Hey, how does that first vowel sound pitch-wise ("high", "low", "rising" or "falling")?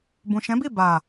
low